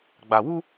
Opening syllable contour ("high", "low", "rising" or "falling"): low